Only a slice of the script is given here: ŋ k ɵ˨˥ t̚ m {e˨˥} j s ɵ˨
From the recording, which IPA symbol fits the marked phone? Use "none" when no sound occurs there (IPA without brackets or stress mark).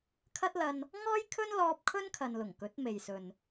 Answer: e˨